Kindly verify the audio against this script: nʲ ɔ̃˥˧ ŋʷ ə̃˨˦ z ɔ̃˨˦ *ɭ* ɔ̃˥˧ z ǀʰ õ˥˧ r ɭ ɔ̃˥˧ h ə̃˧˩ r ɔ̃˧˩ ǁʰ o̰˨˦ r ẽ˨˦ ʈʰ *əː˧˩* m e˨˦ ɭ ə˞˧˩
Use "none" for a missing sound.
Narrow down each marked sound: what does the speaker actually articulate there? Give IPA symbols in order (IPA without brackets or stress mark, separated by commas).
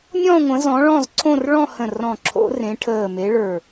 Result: ɭ, əː˧˩